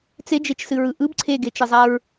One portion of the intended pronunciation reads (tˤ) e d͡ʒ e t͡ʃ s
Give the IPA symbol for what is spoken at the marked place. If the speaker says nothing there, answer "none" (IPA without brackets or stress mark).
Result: t͡s